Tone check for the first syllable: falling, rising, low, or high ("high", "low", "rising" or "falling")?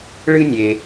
high